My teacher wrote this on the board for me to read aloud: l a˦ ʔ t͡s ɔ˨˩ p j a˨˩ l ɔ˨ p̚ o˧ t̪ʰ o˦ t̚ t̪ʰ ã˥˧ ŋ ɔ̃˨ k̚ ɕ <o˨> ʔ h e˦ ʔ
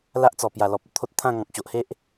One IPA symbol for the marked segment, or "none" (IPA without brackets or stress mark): o˨